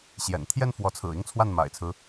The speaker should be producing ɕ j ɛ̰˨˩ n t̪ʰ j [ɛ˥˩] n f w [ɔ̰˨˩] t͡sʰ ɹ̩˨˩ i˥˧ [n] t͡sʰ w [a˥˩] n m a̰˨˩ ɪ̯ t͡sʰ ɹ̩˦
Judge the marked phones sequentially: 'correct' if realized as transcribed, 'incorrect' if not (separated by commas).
correct, incorrect, incorrect, correct